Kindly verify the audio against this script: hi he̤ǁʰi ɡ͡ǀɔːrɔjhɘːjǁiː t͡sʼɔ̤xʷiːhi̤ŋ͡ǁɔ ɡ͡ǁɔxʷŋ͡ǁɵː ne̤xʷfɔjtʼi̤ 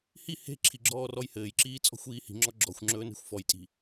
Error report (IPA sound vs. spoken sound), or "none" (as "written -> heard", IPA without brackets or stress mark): ɡ͡ǀ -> ɡ͡ǁ